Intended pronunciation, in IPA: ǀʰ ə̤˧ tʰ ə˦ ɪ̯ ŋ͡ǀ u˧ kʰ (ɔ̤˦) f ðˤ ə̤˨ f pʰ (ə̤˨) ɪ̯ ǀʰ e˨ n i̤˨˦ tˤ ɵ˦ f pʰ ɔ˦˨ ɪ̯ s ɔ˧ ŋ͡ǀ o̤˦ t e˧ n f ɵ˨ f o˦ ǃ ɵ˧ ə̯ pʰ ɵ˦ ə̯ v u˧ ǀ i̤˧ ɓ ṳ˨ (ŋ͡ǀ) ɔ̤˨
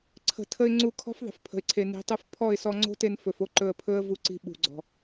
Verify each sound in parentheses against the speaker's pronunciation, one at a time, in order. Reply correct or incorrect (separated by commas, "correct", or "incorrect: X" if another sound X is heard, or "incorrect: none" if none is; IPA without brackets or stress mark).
correct, correct, incorrect: ɡ͡ǀ